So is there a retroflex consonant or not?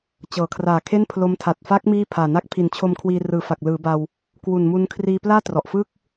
no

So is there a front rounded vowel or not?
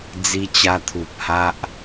no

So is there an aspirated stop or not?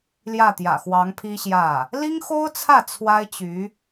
yes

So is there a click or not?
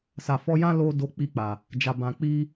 no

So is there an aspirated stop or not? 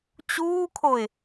yes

